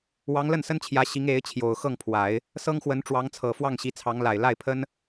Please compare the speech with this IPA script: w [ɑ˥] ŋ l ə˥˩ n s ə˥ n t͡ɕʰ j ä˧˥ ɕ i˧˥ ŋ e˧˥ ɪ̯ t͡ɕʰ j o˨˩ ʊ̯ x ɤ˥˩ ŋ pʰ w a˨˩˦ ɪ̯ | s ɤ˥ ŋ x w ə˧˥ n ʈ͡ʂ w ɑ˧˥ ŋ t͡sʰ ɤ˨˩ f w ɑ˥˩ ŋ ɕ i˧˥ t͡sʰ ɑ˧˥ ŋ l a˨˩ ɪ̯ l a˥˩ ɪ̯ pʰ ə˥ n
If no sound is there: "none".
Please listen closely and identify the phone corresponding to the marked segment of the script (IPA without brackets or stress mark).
ɑ˧˥